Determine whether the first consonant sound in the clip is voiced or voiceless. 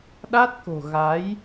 voiced